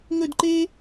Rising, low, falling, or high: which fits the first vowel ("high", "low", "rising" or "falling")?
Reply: falling